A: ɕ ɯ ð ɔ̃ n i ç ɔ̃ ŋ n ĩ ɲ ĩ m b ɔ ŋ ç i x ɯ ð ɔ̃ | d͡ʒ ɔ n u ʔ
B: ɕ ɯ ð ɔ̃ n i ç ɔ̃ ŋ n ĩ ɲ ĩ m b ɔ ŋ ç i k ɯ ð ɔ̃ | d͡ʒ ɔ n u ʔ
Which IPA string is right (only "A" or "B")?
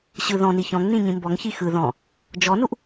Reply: A